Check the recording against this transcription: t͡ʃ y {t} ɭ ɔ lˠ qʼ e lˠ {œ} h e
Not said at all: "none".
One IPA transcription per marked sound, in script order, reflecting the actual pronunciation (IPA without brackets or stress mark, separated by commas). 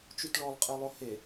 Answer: t, ɵ